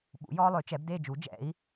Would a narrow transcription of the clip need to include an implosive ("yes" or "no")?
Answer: yes